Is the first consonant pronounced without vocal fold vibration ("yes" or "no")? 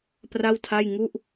yes